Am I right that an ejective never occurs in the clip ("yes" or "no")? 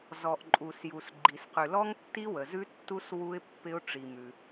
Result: no